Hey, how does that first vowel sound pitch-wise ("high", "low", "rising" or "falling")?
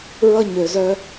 high